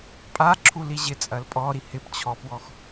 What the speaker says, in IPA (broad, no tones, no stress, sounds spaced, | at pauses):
pʼ a ǁʰ u l i ʑ ɪ t͡sʼ ɐ l pʼ ɔ ɾ i h ɪ p t͡ɕʰ ɔ p w ɔ x